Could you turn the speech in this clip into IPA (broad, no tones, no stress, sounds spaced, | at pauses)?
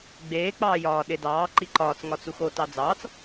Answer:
ɡ͡b eː k͡p ɑː j ɒː ɗ e d ɑː ǃ i ǃ ɒː t͡s ŋ ɒ t͡s u x o t ɑ d͡z ɑː t͡s